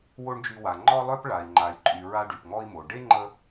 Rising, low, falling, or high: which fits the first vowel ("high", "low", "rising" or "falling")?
high